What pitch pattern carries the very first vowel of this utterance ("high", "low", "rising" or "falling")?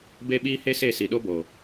high